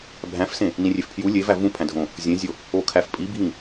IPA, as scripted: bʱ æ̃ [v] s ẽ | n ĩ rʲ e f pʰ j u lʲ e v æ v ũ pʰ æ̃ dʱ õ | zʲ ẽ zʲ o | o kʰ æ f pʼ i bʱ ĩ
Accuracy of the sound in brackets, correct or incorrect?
incorrect